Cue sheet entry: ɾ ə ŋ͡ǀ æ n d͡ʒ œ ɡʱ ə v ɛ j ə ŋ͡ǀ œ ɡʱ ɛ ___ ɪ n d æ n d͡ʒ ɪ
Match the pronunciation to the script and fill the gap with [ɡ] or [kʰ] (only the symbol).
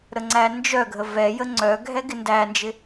ɡ